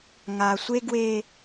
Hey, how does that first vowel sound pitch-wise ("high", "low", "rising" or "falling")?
low